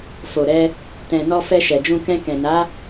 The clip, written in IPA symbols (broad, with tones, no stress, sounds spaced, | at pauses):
f o˨ ɾ ɛ˧ | t ɛ̃˨ n ɔ˧ f ɛ˧ ʃ ɛ˨ d͡ʒ ũ˧ k ɛ̃˧ k ɛ̃˨ n a˨˦